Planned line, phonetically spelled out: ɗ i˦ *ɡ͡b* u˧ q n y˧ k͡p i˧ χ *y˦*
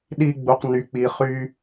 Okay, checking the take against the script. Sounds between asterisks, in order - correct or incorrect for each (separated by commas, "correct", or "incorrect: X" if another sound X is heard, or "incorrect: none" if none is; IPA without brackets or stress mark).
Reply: correct, correct